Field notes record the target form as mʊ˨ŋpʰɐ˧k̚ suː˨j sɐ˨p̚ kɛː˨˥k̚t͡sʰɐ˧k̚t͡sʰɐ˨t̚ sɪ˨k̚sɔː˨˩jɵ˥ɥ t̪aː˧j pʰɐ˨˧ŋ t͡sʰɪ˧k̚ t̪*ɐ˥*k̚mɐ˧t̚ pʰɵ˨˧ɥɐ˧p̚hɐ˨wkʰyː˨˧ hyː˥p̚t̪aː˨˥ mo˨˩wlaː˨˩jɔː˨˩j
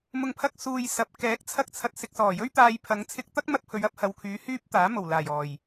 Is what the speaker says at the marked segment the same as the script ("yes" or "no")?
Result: yes